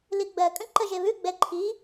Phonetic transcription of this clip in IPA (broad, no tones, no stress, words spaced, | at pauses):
liɡ͡bɜkʼə̃ ǃəʒeβʉɡ͡bɛ ǃʰi